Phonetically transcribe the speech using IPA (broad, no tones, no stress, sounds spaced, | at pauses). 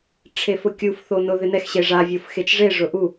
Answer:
ʈ͡ʂʰ e f ʊ kʲ u f θ o n ʊ ð ɪ n ɛ x ɕ e ʐ a vʲ o f x e t͡ʃ ʐ e ʐ ʊ ʔ u